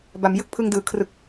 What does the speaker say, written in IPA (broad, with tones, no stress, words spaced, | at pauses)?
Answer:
ba˩˦m jɯ˥˩k̚pʰɯ˧ŋdɯː˩˦ kʰrɯ˨˩k̚